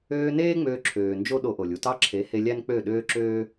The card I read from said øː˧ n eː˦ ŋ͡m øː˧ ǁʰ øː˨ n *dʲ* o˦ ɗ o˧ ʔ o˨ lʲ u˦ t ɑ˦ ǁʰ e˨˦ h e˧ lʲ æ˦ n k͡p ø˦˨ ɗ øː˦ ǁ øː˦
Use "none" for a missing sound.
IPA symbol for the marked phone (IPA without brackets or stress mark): d͡ʒ